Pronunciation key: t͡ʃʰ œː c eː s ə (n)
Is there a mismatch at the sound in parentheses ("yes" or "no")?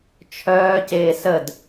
yes